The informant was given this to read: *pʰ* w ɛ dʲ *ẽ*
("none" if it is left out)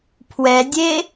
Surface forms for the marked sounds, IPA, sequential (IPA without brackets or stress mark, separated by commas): pʰ, e